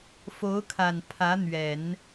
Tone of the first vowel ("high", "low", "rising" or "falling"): rising